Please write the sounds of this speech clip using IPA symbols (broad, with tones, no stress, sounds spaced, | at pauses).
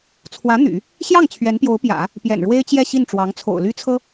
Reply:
t͡sʰ w ä˧˥ n̪ y̰˨˩˦ | ɕ j ɑ˥˩ ŋ t͡ɕʰ ɥ ɛ˧˥ n p j o˧˥ ʊ̯ p j ä̰˨˩˦ | p j ɛ̰˨˩ n ɻ w e˥ ɪ̯ t͡ɕ j ɛ˥˧ ɕ i˥˩ n ʈ͡ʂ w ɑ˧˥ ŋ t͡sʰ o̰˨˩ ʊ̯ l y˥ t͡sʰ ɤ˥